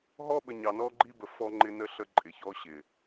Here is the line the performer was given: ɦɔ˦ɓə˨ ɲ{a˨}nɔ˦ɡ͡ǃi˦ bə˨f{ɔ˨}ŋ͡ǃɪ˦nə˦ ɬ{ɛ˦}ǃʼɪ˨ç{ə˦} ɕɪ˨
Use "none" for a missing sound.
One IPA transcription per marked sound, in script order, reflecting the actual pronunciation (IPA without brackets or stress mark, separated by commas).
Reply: ɑ˨, ɔ˦, ə˦, ɔ˦